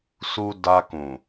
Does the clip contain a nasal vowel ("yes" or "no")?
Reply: yes